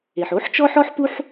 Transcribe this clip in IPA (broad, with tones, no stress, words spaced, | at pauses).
e˩ħo˧˥ħt͡ʃɔ˥ħɔ˥ħ pu˥ħ